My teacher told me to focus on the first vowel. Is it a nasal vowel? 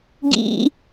no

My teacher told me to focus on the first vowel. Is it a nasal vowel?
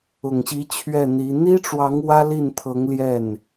no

